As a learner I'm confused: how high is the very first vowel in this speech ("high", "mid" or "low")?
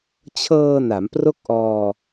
mid